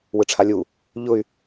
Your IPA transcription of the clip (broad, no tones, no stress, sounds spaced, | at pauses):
w ɯ ʈ͡ʂʰ a lʲ u | ʎ ʊ y̯